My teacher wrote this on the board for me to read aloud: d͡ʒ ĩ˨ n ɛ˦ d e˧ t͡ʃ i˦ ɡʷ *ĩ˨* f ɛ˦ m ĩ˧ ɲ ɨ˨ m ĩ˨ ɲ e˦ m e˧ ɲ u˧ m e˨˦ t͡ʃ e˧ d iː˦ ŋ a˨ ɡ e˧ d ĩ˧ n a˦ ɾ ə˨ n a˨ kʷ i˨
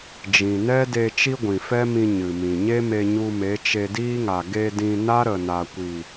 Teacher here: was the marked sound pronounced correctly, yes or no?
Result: yes